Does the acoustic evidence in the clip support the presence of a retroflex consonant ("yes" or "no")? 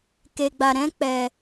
no